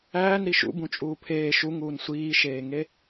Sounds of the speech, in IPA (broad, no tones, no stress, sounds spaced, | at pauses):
æː n ɾ i ʃ ṵ b ũ t͡ʃʼ uː pʰ eː ʃ u ŋ uː n sʷ iː ʃ eː ŋ e